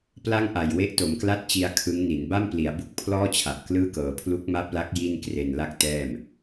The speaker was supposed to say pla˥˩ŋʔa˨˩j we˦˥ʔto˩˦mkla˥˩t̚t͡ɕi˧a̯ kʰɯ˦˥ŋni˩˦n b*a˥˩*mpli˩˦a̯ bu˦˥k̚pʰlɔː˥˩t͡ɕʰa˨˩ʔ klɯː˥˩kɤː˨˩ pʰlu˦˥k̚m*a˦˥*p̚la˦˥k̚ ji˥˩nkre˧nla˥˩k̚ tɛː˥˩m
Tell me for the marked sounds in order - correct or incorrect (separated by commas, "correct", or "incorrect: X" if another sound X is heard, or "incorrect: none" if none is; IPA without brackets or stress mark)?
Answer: correct, correct